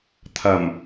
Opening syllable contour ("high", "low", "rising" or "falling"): low